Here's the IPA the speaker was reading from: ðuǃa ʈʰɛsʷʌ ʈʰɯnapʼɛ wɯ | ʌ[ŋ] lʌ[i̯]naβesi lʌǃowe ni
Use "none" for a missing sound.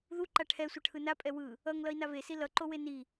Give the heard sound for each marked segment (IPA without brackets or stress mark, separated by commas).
ŋ, i̯